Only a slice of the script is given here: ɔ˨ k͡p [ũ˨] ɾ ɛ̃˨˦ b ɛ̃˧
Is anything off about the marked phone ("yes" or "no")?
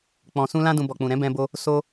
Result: no